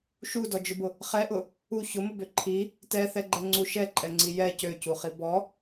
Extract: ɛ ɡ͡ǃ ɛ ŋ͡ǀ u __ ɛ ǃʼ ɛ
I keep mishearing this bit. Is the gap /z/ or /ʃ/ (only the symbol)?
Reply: ʃ